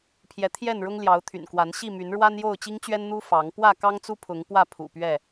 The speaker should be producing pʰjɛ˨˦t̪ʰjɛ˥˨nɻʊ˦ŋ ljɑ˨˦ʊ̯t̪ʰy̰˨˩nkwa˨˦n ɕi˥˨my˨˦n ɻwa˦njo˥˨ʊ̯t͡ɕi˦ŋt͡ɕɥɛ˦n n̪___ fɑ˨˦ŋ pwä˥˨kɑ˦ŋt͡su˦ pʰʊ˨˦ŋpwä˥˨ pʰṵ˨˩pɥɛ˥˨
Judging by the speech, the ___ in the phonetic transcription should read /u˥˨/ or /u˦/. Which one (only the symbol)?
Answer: u˦